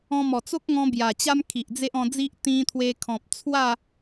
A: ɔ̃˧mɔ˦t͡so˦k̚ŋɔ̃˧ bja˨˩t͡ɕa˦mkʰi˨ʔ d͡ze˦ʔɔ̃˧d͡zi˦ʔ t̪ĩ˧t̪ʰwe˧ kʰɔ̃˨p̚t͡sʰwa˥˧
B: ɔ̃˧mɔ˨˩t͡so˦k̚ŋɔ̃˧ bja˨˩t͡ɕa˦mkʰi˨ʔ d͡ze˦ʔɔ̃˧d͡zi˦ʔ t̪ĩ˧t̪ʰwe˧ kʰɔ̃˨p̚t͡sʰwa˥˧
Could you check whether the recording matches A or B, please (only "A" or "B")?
B